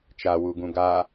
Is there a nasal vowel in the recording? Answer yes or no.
yes